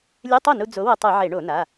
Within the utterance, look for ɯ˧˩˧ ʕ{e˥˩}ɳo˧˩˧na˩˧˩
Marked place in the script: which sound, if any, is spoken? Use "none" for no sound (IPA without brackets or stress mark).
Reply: e˧˩˧